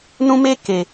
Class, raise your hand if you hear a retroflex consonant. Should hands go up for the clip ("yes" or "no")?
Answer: no